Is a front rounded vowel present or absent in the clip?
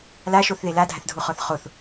absent